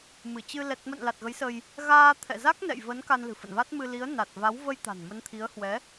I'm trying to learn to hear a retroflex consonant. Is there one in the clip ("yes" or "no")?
no